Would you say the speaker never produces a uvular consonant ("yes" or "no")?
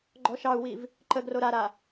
yes